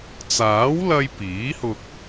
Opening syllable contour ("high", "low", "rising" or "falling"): rising